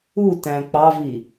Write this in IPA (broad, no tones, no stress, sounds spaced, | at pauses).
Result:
u t æ̃ k͡p ɑ v i